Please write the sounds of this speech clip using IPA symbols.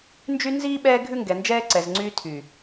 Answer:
nd͡ʒy˦ nziː˦ ɓɛː˦ɡʱʉ˦ŋɡɛ˨ nd͡ʒɛː˦ǀɛ˨zŋ͡ǀyː˦ tʰy˨

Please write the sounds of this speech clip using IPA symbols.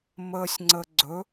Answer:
məːsʲŋ͡ǀəɡ͡ǀɵ

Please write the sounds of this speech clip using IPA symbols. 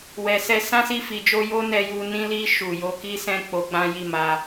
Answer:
wɛ˨sɛ˧ sã˦si˦˨ fi˨d͡ʒo˧ jo˦nɛ˧ju˧ nĩ˧li˧ ʃu˨jo˧ki˦sɛ̃˦˨ k͡po˧ɡ͡bã˦ ji˦˨ma˧

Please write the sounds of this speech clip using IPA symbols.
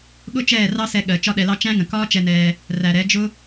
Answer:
ɠʊ˦t͡ʃɛː˦˨ rɑ˦sɛ˧ ɠɜ˨ t͡ʃɒ˦ɗɛ˧lɑ˦ t͡ʃæ̃˦ŋə̃˨ kɒː˦t͡ʃɛ˧nɛː˧ | ræ˨ɾɛ˨˦ d͡ʒʊ˦

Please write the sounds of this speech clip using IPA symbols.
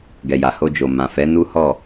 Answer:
ɡɛ˨ja˨ho˧d͡ʒo˨ mã˨fɛ˨˦nu˦hɔ˦˨

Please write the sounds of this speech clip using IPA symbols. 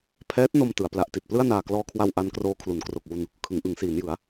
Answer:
pʰɛː˦˥t̚no˧m tɯ˩˦a̯pla˦˥ʔti˨˩t̚ plɯ˥˩a̯naː˨˩klɔː˧kʰwa˧w ʔa˦˥nkroː˦˥ kʰlu˩˦nkro˨˩k̚wu˧n | kʰɯ˩˦ŋʔɯ˩˦ŋsiː˩˦njɯ˩˦a̯

